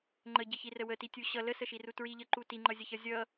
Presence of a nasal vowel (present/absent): absent